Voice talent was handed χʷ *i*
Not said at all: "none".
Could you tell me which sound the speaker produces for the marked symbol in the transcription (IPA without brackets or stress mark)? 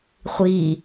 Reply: i